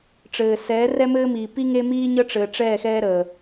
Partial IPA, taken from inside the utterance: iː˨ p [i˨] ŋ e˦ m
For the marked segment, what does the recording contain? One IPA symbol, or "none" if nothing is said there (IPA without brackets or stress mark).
i˦